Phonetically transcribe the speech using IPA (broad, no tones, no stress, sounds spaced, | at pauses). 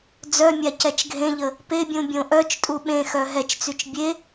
d͡z œ mʲ a c ɛ t͡ʃ ɡʱ ẽ ʎ ə | p e bʲ ũ bʲ õ ʔ œ t͡ʃ tʼ u ɓ ẽ x œ ɦ ɛ t͡ʃ t͡s y t͡ʃ bʲ e